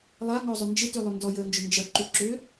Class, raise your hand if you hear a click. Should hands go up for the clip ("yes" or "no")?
yes